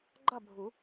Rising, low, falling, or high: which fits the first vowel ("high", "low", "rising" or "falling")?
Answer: falling